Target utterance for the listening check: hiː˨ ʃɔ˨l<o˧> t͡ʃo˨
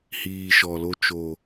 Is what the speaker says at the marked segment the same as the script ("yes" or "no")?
yes